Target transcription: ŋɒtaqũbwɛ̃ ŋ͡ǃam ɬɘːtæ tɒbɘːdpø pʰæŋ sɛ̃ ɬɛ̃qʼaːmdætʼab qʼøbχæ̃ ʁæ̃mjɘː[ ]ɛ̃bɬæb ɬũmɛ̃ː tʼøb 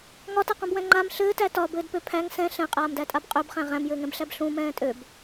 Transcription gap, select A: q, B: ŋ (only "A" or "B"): B